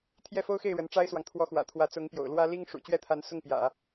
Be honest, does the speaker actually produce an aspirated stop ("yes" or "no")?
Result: yes